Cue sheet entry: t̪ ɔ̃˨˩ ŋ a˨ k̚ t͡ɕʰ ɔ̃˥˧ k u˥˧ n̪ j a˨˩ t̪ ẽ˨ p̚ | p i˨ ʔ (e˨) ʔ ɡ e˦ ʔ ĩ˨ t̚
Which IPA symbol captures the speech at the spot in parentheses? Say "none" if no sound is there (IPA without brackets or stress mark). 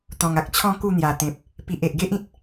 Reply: e˨